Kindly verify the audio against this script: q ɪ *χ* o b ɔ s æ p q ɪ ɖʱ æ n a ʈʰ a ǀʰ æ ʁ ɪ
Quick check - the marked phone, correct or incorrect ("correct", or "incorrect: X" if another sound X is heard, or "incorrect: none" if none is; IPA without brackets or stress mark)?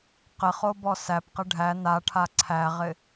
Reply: correct